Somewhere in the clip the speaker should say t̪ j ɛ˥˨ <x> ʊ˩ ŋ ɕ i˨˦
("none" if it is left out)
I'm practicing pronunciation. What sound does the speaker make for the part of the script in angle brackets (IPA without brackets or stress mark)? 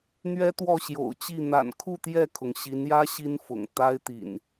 kʰ